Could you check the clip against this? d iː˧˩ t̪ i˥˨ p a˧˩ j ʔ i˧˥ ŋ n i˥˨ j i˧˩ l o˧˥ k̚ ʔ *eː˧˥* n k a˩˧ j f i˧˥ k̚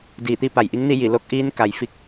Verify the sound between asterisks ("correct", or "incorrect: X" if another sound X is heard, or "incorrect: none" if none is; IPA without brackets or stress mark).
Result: incorrect: iː˧˥